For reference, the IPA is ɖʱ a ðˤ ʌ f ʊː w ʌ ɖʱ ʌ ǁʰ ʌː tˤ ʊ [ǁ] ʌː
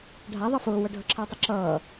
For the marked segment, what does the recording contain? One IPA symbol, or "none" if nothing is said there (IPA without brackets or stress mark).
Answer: ǁ